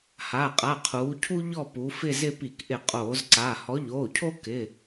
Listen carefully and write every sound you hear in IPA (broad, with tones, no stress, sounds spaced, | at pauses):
h a˩˧˩ qʼ a˩˧˩ qʰ uː˩˧ cʰ u˦ ʎ ɔ˦˨ p u˩˧ f ɪ˦˨ z ɪ˦˨ p i˧˩˧ k ʔ ɪ˧˩˧ qʼ oː˧˩˧ z ǀ a˩˧˩ h ɔ˨˥ ʎ oː˩˧˩ cʰ o˦ k ɪ˩˧˩